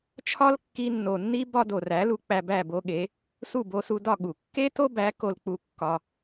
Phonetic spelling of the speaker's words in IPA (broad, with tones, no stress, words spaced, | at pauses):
t͡ʃʰɒ˦lkːi˧nːo˨nːi˦ bɒ˦ do˨ræ˨˦lu˧ k͡pæ˧bæ˦˨bo˦ɠe˨˦ | su˦˨bo˧su˧dɒ˦˨ ɠu˨ kːe˦to˦bæ˨˦ ko˧lk͡pu˧ kːɒ˧